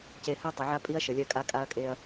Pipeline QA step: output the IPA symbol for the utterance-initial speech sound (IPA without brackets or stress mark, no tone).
c